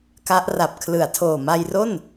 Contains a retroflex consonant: no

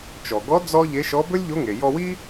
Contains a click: no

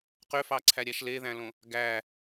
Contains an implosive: no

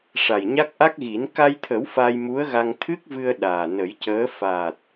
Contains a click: no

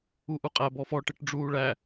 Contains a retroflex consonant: yes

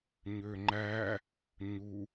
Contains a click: yes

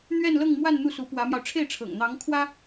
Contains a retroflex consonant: yes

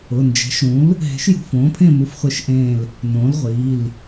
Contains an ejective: no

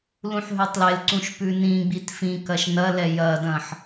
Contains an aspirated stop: no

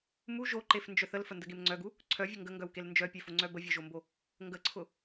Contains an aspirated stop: yes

